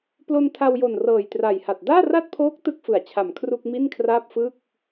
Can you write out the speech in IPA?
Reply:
plo˧ntʰa˧wjo˨˩n rɤː˨˩jtra˨˩jha˨˩t̚ daː˥˩ra˥˩t̚pʰoː˦˥k̚ tɯ˦˥k̚fɯ˩˦a̯t͡ɕʰa˨˩m kʰru˥˩k̚mi˥˩nkʰraː˥˩p̚ fɯ˥˩k̚

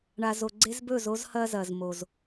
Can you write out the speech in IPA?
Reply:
ɳa˨zo˨ ɡ͡ǀe˦zbɵ˦˨zo˦z hɐ˦zɐ˨z mo˨z

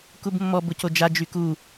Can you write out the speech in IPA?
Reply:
kubmːɔb ʊcod͡ʒa d͡ʒyku

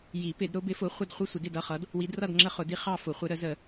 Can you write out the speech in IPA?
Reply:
ji˨˩˦pɪ˨˩˦d ɾʊ˨˦bɪ˨˦fʊ˨˦χʷə˦˨d χʷi˦˨sʷɪ˨˩˦dɪ˦˨d ʌ˦˨χʌ˨˦d | wi˨˦drʌ˦˨d ŋ͡ǁə˦˨χʊ˨˩˦di˨˦ χɑ˦˨fʊ˨˩˦χʷɪ˨˦ɾə˨˩˦ zə˨˩˦

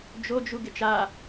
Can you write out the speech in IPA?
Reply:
d͡ʒod͡ʒu ɡɪt͡ʃa

